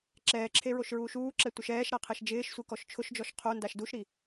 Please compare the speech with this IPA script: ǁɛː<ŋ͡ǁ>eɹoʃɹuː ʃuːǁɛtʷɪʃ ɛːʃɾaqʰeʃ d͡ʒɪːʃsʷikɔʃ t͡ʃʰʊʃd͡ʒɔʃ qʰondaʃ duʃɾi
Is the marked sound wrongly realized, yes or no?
yes